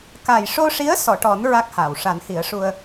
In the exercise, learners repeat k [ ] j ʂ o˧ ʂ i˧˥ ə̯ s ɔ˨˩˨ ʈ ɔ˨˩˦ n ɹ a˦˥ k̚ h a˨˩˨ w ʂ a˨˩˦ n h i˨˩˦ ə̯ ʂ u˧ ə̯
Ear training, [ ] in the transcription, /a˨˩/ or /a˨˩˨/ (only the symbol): a˨˩